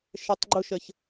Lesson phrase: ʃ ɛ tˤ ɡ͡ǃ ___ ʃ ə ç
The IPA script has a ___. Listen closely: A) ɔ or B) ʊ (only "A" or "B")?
B